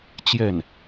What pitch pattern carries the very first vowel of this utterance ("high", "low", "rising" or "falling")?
falling